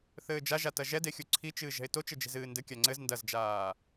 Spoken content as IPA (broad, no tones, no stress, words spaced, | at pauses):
θɘːd͡ʒaʒa tɐʒɛdexʲu ǀʰit͡ʃɨːʒɛ̤ɪ̯ tot͡ʃɘd͡ʒe̤zɨː ndɘ kʲaŋ͡ǀɘz ndɐzd͡ʒaː